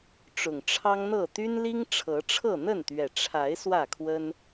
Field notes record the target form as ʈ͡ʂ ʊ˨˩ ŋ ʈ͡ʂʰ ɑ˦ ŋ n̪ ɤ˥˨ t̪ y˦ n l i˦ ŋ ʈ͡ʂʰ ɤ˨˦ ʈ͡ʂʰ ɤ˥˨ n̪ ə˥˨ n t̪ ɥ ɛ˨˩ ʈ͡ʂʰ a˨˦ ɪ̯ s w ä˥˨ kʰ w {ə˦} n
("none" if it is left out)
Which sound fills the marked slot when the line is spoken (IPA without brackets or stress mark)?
ə˦